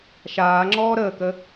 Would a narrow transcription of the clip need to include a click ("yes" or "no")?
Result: yes